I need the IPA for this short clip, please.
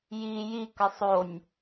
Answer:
j i j i k ə sˤ o nʲ

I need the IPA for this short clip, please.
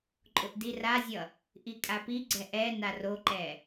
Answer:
ǃʼ ʊ ʔ d i r a zʲ ʌ | ʔ i kʼ a p i ɡ͡ǀ ɛ ʔ ɛ n a r o ǃ ɛ

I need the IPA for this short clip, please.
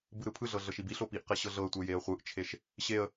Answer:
b ɯ ɾ ɯ pʰ ɯ ɮ ɤ ɮ ɤ ʃ i b i ɬ o p i ʔ q e ɕ ɤ ɮ ɤ ə̯ tʷ e j e ə̯ χʷ ɯ ʔ t͡ʃʰ e ʃ | ɕ e ə̯

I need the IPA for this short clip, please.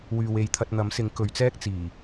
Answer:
w yː˨ w e˨˧ j t̪ʰ ɐ˧ t̚ n̪ ɐ˨˥ m s ɪ˨˥ ŋ k ɵ˨˧ ɥ t͡s ɛː˥ k̚ t͡s iː˨˩

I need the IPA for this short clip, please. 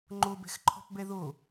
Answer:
ŋ͡ǃ o b ɛ̤ x ǃʰ ɔ̤ p b ɛ ð o

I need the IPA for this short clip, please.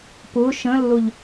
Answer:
p ʊ ʃ ə̃ lː ʊ ʎ

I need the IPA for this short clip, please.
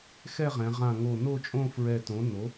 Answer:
x ɛ˥˧ ʁ ɛ̃˩˧ ʁ ã˧˩ ŋ o˧˩ n o˥˧ t͡ʃʼ õ˥˧ f ɹ ɛ˧˩ t õ˩˥ n o˩˥

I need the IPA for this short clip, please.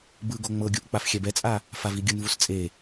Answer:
b ɯ ɡ o ŋ͡m ɤ ɡʲ u ʔ k͡p a f xʲ ɛ b ɛ t͡sʼ a | f a v i ɡʲ ɯ n v u s t͡sʼ e

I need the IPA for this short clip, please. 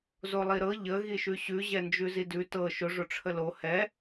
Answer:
z o lˠ i ɾ ɤ ʎ ə ɣ i ʃ ʉ ɕ ʉ ʑ ɛ n d͡ʒ ʉ z i d ʉ t ɤ ʃ ʊ ʐ ʊ ʈ͡ʂʰ ə l o h ɛ

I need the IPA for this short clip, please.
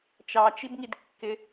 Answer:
t͡ʃ ɑ t͡ʃ i b ŋ i d kː ɪ

